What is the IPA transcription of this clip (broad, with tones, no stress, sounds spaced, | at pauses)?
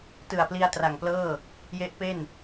t ɯ˨˩ a̯ p l i˧ a̯ t r a˨˩ ŋ p l ɤː˥˩ | j e˦˥ ʔ p e˥˩ n